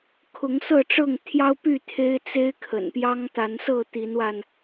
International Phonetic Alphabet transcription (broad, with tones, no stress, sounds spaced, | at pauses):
kʰ ʊ˨˦ ŋ s ɤ˥˨ ʈ͡ʂ ɤ˥˨ ŋ t̪ʰ j ɑ˦ ʊ̯ p y˥˨ t̪ʰ e˦ ɪ̯ t͡s e˦ ɪ̯ kʰ ə̰˨˩ n p j ɑ˦ ŋ t̪ a˨˦ n s ɤ˥˨ t̪ i˨˦ n w a˧ n